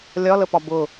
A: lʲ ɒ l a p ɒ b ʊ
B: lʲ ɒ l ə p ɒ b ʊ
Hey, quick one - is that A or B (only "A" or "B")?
B